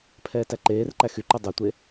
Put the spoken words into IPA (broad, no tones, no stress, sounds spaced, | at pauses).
pʰ ɛː t æ ǃ eː r ǃ æ x y ǃ ʉ dˤ e tʷ e